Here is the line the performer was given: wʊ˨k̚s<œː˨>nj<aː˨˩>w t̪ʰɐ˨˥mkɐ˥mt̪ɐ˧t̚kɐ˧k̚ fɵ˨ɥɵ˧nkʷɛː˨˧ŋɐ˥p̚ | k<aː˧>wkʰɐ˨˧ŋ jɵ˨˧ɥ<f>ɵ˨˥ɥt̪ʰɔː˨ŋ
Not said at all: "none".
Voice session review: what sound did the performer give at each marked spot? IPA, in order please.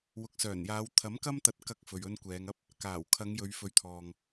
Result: œː˨˩, aː˨˧, aː˨˩, f

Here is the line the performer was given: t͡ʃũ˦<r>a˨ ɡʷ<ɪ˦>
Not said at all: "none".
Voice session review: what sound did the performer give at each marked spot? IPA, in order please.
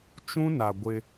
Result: n, ɪ˦

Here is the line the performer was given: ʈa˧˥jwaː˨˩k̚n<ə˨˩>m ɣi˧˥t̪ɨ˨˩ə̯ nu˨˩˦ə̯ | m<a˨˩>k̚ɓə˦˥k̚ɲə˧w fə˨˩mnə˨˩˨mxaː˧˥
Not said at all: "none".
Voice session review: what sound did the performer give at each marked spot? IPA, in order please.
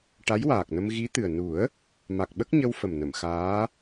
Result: ə˧, a˨˩

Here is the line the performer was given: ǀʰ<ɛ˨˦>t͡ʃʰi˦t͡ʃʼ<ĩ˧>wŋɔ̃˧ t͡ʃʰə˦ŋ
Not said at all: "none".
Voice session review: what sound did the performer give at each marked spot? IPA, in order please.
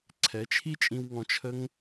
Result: ɛ˨˦, ĩ˧

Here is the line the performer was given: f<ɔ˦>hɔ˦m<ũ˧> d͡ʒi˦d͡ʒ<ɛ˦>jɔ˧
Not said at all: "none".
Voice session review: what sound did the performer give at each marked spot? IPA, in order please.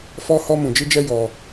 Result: ɔ˦, ũ˧, ɛ˦

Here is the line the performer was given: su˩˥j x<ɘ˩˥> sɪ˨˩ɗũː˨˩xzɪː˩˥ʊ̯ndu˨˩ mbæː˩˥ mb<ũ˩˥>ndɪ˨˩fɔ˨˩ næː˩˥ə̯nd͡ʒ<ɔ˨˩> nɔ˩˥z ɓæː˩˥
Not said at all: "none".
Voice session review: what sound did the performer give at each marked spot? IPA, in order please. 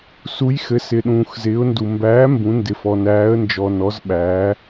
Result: ɘ˩˥, ũ˩˥, ɔ˨˩

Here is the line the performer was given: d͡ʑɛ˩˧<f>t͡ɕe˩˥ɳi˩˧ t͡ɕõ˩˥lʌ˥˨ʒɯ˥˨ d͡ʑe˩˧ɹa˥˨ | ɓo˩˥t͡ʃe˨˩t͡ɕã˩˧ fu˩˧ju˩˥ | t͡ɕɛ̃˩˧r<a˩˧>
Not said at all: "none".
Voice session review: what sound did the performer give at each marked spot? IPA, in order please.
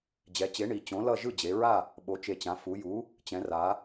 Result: none, a˩˧

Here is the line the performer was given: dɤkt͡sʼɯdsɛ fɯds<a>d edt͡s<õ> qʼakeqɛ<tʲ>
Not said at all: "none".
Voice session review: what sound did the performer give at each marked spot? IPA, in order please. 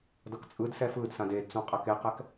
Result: ã, õ, k

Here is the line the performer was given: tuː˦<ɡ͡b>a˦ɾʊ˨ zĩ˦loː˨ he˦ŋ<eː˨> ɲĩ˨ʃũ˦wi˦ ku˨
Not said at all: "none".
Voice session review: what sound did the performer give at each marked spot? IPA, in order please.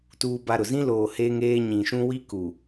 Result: b, eː˦

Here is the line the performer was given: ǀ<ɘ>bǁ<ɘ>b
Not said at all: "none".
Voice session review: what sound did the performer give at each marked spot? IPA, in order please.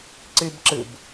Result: e, ɘ

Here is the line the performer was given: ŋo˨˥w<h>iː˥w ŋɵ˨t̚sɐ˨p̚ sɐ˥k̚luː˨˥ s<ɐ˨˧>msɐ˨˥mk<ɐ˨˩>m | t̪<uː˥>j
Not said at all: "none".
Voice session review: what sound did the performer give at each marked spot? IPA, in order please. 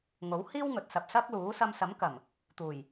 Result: h, ɐ˧, ɐ˨˩, uː˨˩

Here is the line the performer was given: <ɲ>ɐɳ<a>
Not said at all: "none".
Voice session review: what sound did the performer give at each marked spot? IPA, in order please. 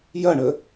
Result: j, ə

